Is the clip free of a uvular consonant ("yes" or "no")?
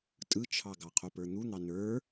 no